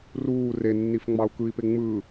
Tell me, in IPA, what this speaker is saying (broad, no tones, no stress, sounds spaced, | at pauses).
r uː r e nː i f ŋ͡m ɑ u̯ k ɯ i̯ p e ŋ͡m ɯ